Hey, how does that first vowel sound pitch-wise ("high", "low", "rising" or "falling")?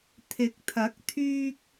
rising